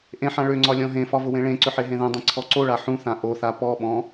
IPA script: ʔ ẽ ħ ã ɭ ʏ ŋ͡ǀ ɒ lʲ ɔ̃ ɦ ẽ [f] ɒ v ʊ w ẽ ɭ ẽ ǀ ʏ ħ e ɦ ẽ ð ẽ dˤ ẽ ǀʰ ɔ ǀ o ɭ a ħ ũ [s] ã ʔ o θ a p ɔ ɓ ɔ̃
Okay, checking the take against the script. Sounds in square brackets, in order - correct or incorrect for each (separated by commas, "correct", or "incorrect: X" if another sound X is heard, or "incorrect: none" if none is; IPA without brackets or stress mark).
correct, incorrect: θ